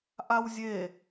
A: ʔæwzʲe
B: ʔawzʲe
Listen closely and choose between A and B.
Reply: B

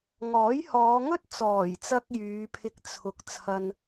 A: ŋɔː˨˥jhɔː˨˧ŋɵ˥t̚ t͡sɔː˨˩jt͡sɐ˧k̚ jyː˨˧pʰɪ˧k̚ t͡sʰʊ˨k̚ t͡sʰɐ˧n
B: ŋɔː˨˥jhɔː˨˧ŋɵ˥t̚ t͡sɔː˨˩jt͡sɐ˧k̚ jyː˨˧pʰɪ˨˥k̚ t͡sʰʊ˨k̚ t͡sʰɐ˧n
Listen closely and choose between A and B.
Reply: A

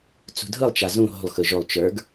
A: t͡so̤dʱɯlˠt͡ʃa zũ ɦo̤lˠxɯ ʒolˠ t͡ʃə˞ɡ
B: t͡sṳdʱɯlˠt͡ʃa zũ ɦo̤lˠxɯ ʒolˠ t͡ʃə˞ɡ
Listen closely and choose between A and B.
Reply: B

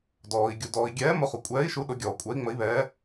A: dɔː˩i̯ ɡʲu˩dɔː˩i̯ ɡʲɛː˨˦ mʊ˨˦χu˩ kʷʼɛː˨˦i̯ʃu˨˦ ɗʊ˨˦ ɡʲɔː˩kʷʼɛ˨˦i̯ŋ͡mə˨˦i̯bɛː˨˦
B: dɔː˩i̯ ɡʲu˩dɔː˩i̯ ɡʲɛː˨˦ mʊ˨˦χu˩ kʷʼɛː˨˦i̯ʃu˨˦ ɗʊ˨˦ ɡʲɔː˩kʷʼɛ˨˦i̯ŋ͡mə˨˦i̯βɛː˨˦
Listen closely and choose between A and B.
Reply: B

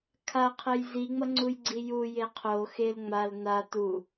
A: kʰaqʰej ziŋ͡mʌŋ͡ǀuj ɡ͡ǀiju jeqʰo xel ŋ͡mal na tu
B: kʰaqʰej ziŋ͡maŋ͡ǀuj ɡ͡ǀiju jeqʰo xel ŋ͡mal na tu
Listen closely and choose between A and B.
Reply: A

